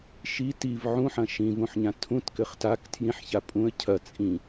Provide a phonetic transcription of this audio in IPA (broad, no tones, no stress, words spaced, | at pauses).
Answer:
ʃi tiv ʕũħɐ̃ ʃĩvũħɲã tʰũtkɘχ tak tʰjĩħça pʼũə̯ cʰɐ t͡sʼĩ